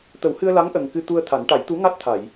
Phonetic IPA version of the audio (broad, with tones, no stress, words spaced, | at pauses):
t̪ə˨˩˦whɨ˧ə̯la˧˥ŋ ʔə˨˩ŋkɨ˧ t̪u˧ə̯ t̪ʰa˨˩˦n ʈa˨˩˦jt̪u˧˥ŋa˦˥t̚t̪ʰa˨˩˨j